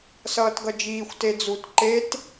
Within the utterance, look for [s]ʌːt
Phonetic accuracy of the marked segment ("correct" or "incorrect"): correct